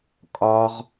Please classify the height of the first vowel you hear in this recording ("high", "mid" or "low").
low